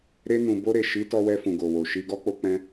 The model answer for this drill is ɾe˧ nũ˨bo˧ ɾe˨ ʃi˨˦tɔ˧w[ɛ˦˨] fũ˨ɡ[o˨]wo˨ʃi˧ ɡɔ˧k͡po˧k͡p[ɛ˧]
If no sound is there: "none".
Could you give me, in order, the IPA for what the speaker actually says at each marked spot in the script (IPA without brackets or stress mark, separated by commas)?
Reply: ɛ˧, o˨, ɛ̃˧